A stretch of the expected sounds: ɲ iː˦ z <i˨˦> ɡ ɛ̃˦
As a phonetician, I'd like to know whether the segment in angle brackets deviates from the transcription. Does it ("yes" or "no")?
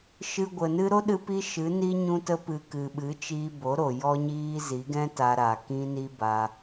no